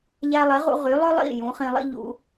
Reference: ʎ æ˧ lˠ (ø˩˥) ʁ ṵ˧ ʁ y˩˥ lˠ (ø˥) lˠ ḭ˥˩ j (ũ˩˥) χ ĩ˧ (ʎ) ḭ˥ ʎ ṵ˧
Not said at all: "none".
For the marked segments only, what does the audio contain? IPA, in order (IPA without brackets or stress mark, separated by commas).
e˩˥, ø˥, ũ˩˥, lˠ